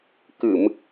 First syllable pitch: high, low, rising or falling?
low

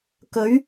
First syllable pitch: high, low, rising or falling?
rising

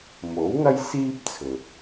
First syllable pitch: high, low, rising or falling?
rising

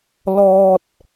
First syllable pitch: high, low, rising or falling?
high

